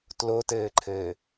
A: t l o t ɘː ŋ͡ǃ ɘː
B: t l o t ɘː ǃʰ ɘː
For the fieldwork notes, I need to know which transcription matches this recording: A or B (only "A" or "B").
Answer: B